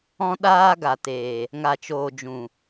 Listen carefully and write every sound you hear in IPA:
ɔ̃˧ ɗ aː˧ ɡ a˨ t eː˨ | ŋ a˨ t͡ʃ oː˨ d͡ʒ ũ˨

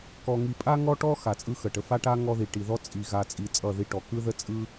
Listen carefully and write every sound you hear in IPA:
k ɔ˨ ŋ i˨ pʼ a˦ ŋ ɔ˦ ʈ ɔ˦ x a˨ t͡sʼ ɯ˦ x ə˨ ʈ ə˨ f a˦ ʈ a˦ ŋ ɔ˦ ð i˨ ʈ i˨ ð ɔ˦ t͡sʼ i˨ ɣ a˨ t͡sʼ i˨ t͡sʼ ʌ˦˨ ð i˦ ʈ ɔ˨ k ɯ˦ ð ə˦ t͡sʼ ɯ˦

